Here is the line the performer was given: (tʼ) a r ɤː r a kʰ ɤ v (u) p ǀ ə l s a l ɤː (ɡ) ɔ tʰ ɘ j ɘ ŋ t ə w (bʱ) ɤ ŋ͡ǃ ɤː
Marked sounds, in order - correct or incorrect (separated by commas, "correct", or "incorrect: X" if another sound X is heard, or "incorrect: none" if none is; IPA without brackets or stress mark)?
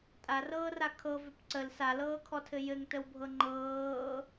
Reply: correct, incorrect: ʏ, incorrect: kʰ, correct